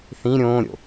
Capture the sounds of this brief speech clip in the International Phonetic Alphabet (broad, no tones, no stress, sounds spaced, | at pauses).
θ ĩ ɾʲ õː ɾʲ o̰